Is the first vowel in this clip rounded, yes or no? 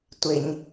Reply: no